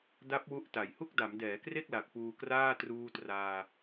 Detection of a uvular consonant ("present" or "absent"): absent